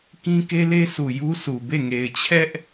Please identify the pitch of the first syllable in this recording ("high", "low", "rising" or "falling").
high